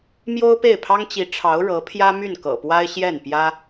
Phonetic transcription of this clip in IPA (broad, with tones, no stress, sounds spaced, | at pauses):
m j o˥ ʊ̯ p e˥˩ ɪ̯ pʰ ɑ˥ ŋ t͡ɕ i˧˥ ʈ͡ʂʰ ɑ˧˥ ʊ̯ ɻ ɤ˧˥ pʰ j ä˥ m y˥˩ n k ɤ̰˨˩ p w a˥ ɪ̯ ɕ j ɛ˥˩ n p j ä˥